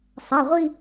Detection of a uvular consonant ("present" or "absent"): present